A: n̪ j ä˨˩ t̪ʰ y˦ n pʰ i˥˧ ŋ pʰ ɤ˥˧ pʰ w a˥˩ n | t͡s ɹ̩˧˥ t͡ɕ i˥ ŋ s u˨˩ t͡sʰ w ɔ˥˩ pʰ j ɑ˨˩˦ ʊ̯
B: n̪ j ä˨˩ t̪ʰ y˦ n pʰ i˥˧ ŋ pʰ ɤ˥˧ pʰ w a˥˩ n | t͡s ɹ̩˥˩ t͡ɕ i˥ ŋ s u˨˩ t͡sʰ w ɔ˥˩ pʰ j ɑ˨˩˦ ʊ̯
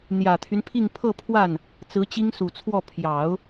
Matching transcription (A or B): A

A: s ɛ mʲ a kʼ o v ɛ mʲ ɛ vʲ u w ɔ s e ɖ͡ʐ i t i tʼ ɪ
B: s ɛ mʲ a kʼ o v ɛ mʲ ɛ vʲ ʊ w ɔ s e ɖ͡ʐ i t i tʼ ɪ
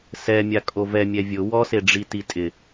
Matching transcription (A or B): B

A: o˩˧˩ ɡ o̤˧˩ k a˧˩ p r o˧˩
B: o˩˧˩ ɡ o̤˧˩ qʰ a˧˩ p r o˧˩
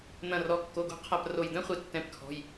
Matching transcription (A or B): B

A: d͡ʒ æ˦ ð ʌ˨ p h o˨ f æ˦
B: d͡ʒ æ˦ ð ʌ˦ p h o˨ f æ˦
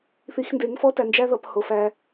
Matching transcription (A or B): A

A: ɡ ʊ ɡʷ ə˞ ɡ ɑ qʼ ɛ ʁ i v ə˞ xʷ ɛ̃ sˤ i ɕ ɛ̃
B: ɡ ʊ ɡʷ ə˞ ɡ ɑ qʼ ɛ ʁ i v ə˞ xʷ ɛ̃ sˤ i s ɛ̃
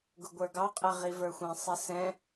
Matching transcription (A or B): B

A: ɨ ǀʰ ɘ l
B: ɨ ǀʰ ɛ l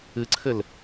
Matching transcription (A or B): A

